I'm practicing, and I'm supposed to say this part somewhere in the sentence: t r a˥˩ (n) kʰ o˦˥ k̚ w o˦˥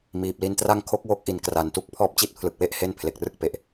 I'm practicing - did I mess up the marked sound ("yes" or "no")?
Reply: yes